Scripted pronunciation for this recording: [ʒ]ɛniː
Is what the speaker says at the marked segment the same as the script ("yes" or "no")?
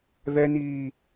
no